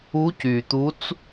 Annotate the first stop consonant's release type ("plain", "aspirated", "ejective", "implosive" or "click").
plain